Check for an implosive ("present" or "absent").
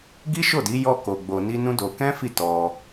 absent